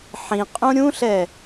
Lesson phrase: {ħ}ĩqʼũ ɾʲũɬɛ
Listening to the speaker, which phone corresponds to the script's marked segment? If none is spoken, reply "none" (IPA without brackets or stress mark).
ħ